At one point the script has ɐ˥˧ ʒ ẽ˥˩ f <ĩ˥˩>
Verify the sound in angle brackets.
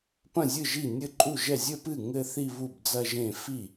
incorrect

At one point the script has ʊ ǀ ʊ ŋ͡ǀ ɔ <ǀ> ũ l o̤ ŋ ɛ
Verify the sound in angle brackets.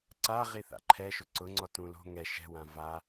incorrect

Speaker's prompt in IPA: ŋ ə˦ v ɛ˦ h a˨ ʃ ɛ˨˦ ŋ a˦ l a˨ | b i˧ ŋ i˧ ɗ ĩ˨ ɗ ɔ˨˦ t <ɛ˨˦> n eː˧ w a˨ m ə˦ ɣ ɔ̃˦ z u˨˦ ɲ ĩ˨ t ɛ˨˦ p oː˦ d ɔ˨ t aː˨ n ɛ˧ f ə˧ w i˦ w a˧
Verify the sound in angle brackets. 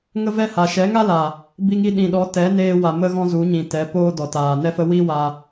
correct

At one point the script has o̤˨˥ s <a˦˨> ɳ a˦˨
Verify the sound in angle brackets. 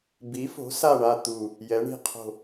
correct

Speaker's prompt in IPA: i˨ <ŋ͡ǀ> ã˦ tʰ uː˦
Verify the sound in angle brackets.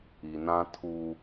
incorrect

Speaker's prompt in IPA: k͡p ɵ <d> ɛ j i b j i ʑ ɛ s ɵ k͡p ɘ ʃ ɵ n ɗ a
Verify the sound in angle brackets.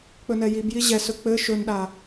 incorrect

